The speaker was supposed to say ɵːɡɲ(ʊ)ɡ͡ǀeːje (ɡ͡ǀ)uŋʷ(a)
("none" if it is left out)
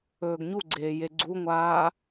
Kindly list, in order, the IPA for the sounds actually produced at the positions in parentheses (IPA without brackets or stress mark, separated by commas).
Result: u, ɡ͡ǀ, aː